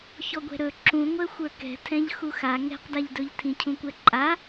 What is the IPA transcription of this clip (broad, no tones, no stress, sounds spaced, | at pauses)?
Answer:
ç ɔ ɡʷ ɛ̤ ɾ ɵ ǁ ũ ŋʷ ɛ xʷ ə˞ k ɛ̤ tʰ ɛ̃ ʎ x u x a ŋ ɛ̤ q d a ʎ d ɵ ʎ tʰ ĩ cʰ ũ kʷ ɛ ǃʼ a